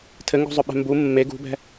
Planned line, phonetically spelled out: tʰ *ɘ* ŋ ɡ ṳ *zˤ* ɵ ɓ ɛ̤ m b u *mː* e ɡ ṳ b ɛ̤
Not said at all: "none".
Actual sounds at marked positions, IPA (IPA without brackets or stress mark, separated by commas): ɘ, zˤ, mː